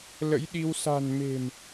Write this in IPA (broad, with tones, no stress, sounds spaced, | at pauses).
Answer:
l ə̰˧˥ j ɗ i˧ w s a̤˨˩ n m e̤˨˩ m